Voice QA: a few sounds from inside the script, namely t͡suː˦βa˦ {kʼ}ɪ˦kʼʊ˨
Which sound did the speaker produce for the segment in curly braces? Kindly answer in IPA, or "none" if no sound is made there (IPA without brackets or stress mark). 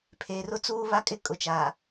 kʼ